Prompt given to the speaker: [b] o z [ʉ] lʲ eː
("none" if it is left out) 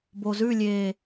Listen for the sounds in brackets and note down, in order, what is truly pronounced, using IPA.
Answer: b, ʉ

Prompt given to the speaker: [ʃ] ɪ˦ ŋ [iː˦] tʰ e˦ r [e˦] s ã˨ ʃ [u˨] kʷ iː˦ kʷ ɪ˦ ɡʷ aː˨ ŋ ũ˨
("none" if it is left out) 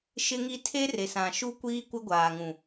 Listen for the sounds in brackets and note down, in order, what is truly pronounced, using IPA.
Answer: ʃ, i˦, e˨, u˦

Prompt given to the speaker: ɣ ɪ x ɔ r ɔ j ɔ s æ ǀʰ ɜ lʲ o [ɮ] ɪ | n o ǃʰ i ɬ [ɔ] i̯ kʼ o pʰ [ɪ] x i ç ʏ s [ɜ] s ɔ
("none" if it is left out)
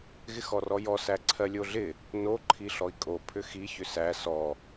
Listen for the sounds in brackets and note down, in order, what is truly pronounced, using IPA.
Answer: ɮ, ɔ, ʏ, æ

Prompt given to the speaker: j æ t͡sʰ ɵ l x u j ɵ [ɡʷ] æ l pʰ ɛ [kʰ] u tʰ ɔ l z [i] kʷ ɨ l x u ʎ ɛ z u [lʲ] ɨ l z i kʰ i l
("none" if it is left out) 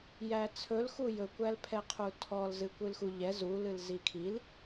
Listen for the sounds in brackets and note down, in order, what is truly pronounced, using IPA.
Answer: kʷ, qʰ, ɨ, l

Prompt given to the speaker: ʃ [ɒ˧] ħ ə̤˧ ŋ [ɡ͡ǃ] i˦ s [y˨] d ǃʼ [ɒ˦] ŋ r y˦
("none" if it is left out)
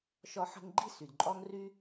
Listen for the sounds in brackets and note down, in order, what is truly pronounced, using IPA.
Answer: ɒ˧, ɡ͡ǃ, y˨, ɒ˦

